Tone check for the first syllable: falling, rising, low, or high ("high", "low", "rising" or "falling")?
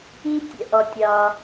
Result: high